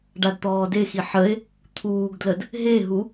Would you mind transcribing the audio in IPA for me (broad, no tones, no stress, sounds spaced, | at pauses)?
ɖ a d t̪ ɔː d e x i ħ ə e̯ | t̪ʰ uː ɡ d l ə d | ɦ e ɦ u